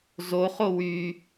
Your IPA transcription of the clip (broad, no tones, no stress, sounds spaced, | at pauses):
z o χ o w y